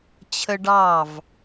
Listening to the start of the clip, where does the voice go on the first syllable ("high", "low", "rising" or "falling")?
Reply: high